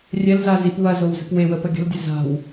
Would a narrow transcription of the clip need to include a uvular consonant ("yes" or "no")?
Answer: no